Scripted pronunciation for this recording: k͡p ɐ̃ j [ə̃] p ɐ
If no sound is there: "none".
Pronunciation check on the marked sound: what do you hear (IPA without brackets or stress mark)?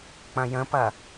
ə̃